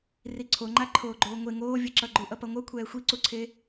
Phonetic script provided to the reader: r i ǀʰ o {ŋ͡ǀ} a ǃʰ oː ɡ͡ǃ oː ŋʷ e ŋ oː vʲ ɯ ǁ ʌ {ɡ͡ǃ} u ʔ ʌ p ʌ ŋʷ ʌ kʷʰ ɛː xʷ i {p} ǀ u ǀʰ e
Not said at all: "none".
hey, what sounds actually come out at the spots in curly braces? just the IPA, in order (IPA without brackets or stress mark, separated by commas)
ŋ͡ǃ, ɡ͡ǃ, none